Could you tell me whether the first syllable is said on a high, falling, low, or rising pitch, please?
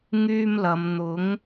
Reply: high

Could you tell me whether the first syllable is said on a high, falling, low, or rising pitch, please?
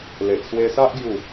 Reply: low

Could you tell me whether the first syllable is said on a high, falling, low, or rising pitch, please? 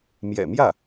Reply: low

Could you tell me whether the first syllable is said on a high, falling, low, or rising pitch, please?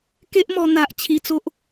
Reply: high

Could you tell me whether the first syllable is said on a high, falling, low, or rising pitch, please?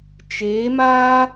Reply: rising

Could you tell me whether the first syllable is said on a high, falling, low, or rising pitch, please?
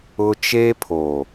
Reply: high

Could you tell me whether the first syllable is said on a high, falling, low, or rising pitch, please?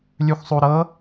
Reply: rising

